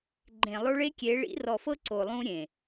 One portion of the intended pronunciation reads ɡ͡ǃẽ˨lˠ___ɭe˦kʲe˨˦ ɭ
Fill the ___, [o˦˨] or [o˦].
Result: o˦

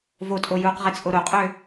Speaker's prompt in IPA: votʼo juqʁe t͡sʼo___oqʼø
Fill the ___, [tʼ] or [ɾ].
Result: ɾ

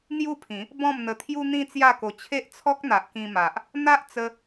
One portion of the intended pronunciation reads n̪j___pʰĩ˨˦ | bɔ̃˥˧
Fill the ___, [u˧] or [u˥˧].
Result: u˥˧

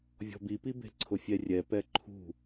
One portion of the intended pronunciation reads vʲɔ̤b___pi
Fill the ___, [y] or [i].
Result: i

